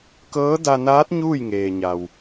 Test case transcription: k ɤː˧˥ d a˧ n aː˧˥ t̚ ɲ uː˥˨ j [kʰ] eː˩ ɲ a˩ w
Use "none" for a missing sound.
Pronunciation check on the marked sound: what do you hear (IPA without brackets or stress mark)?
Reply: ŋ